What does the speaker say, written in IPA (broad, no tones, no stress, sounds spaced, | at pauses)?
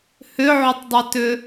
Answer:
h ʏ ʕ ʏ tˤ dˤ ʏ t ʏ